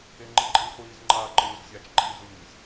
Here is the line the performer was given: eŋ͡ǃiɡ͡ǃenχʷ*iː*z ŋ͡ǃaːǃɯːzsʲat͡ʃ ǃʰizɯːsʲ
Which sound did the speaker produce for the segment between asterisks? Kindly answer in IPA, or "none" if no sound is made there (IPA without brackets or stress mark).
iː